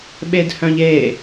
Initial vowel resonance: oral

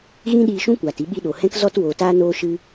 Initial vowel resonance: nasal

